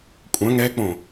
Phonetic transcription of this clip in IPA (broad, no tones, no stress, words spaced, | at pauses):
kʷʼœ̃ ŋɛk͡põ